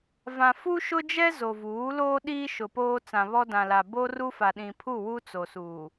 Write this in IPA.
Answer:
v ã˨ f u˦ ʃ ʊ˦ d͡ʒ ɛ˦ z o˨ v uː˨˦ l oː˦ ɗ iː˦ ʃ ʊ˨ p oː˦ t͡s ã˨ β ɔ˦ d ã˨ l a˨ b o˦ r u˦ f a˨ ɗ ĩ˨ pʰ u˦˨ w u˦ t͡s o˨ s uː˨

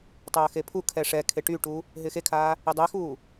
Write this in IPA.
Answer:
tˤ ɐː x e pʰ u kʰ ɛ ʂ ɛ kʰ e ʈ y ʈ u | ɦ ɪː x e kʰ aː | ɪ dˤ ɛ x uː

